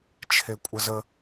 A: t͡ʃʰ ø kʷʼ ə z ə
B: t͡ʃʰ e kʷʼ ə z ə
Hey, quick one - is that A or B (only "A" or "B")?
B